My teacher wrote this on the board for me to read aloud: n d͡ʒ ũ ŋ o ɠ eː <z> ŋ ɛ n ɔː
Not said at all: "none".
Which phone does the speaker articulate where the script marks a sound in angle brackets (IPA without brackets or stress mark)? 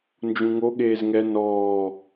z